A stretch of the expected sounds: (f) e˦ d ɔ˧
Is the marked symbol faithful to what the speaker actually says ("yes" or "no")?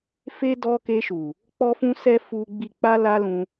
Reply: yes